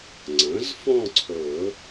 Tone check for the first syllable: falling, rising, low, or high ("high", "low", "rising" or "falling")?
rising